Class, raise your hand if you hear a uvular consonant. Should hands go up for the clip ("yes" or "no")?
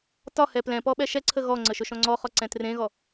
yes